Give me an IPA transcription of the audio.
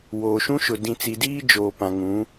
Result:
woː˨ʃũ˦ʃʊ˨ dĩ˨t͡si˨diː˦ d͡ʒoː˨ pã˨ŋũ˨˦

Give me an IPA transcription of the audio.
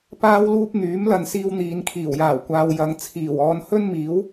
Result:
paː˥wluː˥p̚ n̪yː˨˥mlɐ˨nsiː˧w n̪iː˨nkʰiː˨˩wjaː˨˩wkʷaː˨w jɐ˨˧ŋ t͡sʰiː˨˩wɔː˧n hɵ˥nmiː˨˥w

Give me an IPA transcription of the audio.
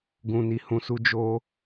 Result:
ɡũ˨ ni˨hũ˧su˦ d͡ʒo˧

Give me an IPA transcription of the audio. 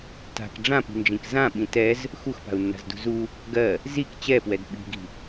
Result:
ta̤k ɖ͡ʐãpi̤nd͡ʒĩk zãɓĩ tɛz | xuxpa̤u̯nːa̤zdṳ zu | ɡɜ | zik t͡ɕɛpwɛd ɓi̤ɡi̤

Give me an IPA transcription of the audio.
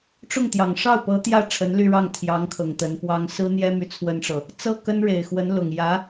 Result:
ʈ͡ʂʊ˥˩ŋ t̪jɑ˨˩ŋ ʂɑ˥˩ʊ̯pɤ˧˥ t̪jä˥˩ ʈ͡ʂʰə˧˥nly˥˧ɻɑ˥˩ŋ t̪ʰjɑ˧˥ŋkʰɤ˨˩ŋ t̪ə˧˥npwɑ˥ŋ sɹ̩˥n̪jɛ˥ my˥˩t͡sʰwə˥nʈ͡ʂɤ˨ | t͡sɤ˥˩ kə˥nɻe˨˩ɪ̯xwə˧˥n lʊ˨˩ŋjä˧˥

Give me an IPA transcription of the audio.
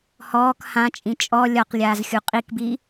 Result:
hɔːk hãt͡ʃʼĩ t͡ʃʼɔ lʲɒqlʲaːzxʲu qʼikbi

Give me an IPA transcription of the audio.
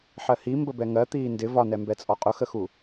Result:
ħɜhi mbəbɛŋɜ t̪iːndɪ vɒnɛmbɛt͡sʼɔ qʼʊxəxu

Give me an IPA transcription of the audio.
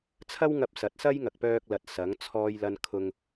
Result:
t͡sʰɐ˥wŋɐ˧p̚sɐ˨˥t̚ sɐ˥jŋɐ˨k̚pœː˧k̚lɐ˨t̚ sɐ˨˥ŋ t͡sʰɔː˥jlɐ˥n kʰʊ˧ŋ

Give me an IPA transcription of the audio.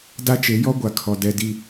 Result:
da˦t͡ʃe˨˦ jɔ˦ɡʷa˨ kʰɔ˨ dɛ˨di˨

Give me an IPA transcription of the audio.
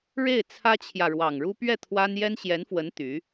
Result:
ɻe˥˩ɪ̯t͡sʰä˥t͡ɕʰjä˨ ɻwɑ˨˩ŋɻu˥ pɥɛ˥˩ t̪ʰwa˥n jɛ˥nɕjɛ˧˥nfwə˧˥n t̪y˧˥

